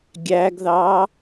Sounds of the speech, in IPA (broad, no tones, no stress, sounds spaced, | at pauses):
ɡʲ æ ɡ ð ɑ